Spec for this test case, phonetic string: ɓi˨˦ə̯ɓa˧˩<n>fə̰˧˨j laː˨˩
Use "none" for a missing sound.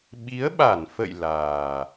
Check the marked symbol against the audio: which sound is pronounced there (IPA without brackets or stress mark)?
n